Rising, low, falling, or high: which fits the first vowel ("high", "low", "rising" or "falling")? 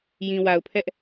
low